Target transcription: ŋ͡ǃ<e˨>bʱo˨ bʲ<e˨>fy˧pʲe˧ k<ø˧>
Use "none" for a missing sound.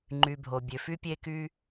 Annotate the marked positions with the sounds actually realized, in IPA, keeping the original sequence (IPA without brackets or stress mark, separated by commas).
y˨, ø˨, y˧